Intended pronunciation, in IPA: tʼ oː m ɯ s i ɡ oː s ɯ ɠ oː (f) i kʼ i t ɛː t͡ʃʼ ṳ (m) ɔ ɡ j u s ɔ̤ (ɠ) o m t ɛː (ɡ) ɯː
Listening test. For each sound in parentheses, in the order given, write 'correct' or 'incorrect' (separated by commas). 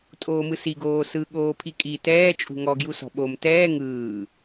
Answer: incorrect, incorrect, incorrect, incorrect